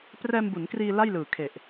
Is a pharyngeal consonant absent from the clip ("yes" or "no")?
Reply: yes